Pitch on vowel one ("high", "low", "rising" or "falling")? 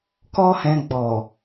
high